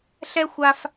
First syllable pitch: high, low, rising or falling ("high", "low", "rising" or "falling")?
high